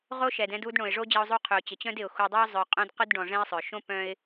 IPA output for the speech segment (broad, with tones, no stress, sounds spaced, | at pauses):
ʁ o˦ ʃ ɛ˩ d ɛ̃˦ d u˦ d ɳ õ˩ ɪ̯ ʐ o˦ d͡ʑ ɐ˦ ʊ̯ zˤ u˦ qʰ ø˨ ʊ̯ t͡ɕ ɪ˩ t͡ɕ œ̃˦ d ɪ˩ ʊ̯ x u˨ dˤ ʊː˥ zˤ œ˨ qʼ œ̃˦ d q ʊ˥ d ɖ ɔ̃˨ ʐ ɛ̃˦ ɪ̯ sˤ œ˩ ʃ õ˥ p œ̃˥ ɪ̯